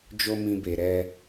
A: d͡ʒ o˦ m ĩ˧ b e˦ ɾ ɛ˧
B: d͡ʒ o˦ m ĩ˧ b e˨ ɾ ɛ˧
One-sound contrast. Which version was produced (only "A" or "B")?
B